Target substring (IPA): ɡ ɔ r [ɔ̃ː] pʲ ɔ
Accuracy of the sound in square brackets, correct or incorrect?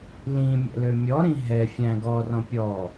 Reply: incorrect